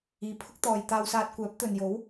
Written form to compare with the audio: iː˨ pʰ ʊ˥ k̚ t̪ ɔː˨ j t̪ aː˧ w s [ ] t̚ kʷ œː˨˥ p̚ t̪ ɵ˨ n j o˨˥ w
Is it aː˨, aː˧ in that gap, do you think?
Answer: aː˧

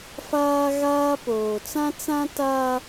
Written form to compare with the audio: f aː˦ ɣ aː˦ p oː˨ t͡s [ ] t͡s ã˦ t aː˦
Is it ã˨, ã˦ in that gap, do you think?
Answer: ã˦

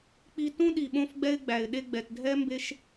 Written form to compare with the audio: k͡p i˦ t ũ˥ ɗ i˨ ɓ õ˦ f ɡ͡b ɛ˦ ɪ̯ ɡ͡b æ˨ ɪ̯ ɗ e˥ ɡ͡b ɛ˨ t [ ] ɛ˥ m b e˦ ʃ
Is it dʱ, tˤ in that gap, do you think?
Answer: dʱ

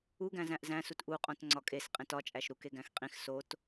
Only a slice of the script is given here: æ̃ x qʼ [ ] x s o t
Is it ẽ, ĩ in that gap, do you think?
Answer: ĩ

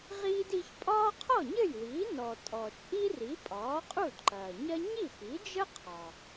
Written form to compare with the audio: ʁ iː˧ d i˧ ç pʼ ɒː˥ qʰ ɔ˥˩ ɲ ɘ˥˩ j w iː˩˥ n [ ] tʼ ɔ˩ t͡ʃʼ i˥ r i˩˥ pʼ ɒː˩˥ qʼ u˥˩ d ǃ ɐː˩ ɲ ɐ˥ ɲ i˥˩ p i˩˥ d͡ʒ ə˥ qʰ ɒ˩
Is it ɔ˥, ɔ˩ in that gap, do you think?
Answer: ɔ˩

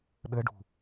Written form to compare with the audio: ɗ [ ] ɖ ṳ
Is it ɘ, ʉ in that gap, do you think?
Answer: ɘ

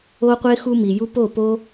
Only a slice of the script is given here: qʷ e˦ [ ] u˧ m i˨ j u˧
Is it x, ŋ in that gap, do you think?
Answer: x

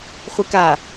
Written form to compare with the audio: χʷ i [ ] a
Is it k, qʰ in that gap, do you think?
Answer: k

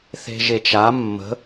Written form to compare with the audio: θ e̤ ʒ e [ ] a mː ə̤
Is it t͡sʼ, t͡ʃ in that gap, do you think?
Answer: t͡ʃ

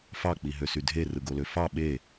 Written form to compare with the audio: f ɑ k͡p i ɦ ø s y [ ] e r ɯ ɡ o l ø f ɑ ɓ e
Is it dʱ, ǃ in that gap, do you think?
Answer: dʱ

